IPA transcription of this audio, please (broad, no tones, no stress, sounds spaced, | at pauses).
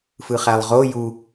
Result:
f ɯ χ æ lˠ ʁ o j u